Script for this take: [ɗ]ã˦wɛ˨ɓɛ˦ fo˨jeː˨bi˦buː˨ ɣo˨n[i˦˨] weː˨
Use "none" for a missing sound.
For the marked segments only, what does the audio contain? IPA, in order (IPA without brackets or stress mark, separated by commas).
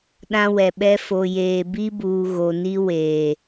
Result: ɗ, i˦